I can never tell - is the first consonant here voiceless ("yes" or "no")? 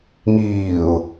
no